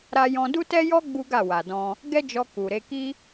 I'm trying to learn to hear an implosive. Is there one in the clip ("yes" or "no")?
no